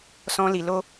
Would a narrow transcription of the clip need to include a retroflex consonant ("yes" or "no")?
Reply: no